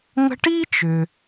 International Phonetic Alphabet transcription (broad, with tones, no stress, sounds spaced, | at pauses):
ŋ ə̤˦ ʈ i˥ t͡ʃ ʏ˩